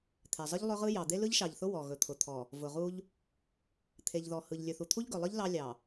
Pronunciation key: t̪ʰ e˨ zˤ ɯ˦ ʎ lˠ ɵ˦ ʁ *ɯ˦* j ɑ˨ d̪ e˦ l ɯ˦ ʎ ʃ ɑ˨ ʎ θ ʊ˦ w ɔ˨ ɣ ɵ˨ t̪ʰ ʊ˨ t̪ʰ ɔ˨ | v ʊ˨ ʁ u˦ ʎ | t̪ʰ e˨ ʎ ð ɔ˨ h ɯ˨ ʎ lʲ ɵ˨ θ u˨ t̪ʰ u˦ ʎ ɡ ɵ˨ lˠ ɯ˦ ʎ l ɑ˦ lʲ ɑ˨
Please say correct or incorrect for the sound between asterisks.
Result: correct